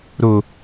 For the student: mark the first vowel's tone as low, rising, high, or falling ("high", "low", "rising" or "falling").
low